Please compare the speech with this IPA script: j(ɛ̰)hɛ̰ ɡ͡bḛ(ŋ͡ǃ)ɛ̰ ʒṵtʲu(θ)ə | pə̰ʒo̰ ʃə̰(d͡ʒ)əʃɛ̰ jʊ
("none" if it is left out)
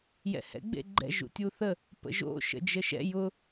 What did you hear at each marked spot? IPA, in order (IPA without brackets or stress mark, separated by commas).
ɛ̰, ɡ͡ǃ, θ, d͡ʒ